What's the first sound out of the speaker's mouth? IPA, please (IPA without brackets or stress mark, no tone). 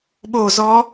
ɓ